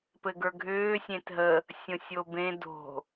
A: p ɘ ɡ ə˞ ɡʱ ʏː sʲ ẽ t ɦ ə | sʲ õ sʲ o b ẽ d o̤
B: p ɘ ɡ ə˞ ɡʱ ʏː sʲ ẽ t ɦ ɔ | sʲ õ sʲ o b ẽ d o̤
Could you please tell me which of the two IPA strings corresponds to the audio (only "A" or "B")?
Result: A